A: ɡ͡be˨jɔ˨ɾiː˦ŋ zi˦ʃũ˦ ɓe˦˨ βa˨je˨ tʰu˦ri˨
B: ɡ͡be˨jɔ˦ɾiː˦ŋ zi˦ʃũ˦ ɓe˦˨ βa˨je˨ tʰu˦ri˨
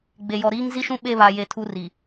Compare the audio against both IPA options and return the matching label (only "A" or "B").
A